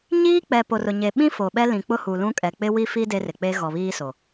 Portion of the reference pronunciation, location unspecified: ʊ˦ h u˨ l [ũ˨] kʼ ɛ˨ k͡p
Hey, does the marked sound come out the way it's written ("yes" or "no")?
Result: no